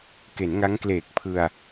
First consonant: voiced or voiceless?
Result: voiceless